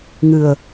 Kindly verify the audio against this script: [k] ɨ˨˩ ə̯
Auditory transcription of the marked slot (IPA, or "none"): ŋ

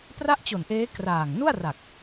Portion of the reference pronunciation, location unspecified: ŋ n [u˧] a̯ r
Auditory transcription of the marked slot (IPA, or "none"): u˥˩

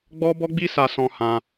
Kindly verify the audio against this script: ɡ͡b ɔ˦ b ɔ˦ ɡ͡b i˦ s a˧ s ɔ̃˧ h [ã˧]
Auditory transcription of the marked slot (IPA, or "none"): ã˧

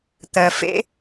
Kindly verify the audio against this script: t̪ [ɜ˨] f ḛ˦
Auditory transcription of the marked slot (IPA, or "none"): ɜ˨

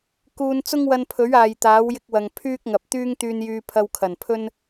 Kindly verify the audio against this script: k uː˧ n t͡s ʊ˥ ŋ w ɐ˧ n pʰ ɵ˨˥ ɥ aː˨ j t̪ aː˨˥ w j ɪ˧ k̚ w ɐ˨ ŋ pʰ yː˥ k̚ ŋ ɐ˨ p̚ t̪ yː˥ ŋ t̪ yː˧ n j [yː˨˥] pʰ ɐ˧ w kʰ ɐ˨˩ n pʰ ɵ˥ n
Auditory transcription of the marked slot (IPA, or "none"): yː˧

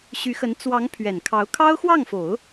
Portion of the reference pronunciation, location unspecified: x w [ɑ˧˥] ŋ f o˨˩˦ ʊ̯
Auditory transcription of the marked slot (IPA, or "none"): ɑ˥˩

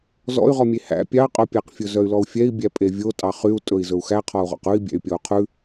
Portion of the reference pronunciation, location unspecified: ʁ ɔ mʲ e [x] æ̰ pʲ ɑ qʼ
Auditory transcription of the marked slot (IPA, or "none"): h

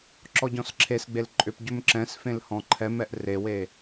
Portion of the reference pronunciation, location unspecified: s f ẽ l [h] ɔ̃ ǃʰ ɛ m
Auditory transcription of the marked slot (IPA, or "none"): h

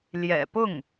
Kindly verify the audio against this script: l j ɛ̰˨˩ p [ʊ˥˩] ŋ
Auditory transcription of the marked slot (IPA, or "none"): ʊ˥˩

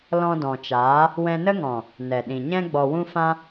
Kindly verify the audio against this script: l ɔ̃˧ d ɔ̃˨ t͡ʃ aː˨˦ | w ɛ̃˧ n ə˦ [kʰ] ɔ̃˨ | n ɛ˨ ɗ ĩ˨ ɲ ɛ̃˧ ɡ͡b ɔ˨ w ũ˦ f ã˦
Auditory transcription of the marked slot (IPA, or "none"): ŋ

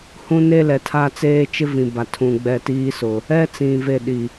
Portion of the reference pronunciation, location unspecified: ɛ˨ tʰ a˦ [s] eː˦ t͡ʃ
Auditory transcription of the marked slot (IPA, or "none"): t͡s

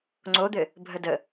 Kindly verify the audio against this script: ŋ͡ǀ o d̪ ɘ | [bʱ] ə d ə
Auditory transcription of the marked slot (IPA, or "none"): bʱ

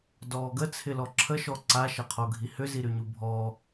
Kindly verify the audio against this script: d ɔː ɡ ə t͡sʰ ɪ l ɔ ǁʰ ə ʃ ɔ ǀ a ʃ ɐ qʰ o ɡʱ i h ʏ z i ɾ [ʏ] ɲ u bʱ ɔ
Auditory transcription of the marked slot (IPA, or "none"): y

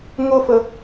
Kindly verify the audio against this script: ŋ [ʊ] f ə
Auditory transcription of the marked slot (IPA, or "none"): ʊ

